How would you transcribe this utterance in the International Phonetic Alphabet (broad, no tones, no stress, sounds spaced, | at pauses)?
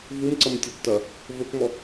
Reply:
v u m ǀ ɐ m tʲ ɔ tː ɐ | v ɵ k m ɔ